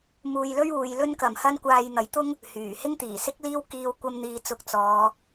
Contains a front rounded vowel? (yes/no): yes